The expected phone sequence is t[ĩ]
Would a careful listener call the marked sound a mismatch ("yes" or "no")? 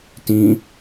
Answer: no